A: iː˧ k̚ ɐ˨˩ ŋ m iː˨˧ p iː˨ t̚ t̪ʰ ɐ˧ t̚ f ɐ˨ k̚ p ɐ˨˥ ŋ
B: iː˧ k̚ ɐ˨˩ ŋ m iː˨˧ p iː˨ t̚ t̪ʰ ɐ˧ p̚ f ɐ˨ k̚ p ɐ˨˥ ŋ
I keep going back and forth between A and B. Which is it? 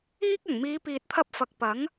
B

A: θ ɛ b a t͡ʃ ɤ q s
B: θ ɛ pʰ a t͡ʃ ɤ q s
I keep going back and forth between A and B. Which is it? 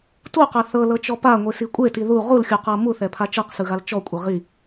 B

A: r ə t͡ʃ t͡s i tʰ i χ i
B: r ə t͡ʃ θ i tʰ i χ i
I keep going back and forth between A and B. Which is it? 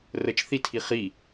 B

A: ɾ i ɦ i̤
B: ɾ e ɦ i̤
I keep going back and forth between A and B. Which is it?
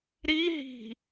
A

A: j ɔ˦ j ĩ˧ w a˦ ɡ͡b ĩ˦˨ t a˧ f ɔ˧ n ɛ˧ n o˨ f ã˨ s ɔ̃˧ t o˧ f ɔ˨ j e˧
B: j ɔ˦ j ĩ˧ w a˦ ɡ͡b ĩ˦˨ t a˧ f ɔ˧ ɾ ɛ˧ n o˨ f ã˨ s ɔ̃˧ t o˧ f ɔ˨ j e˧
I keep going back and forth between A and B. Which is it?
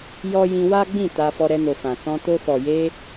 B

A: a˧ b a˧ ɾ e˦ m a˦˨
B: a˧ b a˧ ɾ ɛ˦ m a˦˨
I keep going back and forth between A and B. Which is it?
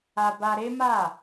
A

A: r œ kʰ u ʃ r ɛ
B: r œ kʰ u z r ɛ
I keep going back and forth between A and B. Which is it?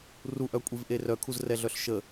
B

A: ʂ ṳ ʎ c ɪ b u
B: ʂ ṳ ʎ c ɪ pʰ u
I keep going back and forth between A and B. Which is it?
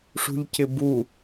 A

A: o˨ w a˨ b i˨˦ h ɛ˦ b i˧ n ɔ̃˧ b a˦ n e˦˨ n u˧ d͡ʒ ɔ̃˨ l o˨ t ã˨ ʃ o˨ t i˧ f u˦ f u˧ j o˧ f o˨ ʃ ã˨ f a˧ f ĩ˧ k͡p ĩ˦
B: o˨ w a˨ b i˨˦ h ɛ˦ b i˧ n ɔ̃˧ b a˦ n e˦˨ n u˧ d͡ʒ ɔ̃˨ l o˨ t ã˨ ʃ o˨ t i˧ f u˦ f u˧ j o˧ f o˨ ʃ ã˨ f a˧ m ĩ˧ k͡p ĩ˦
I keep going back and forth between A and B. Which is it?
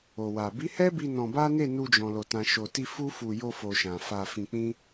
A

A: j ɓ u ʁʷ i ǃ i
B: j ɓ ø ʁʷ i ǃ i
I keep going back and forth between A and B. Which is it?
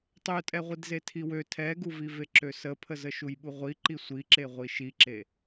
A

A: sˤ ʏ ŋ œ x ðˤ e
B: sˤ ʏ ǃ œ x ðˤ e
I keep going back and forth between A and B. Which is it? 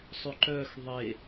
B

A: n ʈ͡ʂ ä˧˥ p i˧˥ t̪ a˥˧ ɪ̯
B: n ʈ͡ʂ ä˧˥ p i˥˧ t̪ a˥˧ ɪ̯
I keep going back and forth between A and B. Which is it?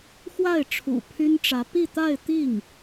B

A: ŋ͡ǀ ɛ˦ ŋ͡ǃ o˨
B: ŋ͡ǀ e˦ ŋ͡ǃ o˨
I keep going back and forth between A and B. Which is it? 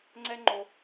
A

